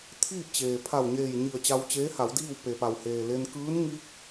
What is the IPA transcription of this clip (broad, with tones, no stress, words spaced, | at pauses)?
t̪ʰiː˥˨p̚t͡ɕeː˩ pʰa˧˩wɲeː˧˩jɲi˧˩ə̯ t͡ɕa˧wt͡ɕeː˧˥ha˩˧wdiː˥˨w pe˩pa˩wheː˩le˧n kɯː˧˥nŋi˧˥k̚